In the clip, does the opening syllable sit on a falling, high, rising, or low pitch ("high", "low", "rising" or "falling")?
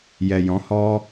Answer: low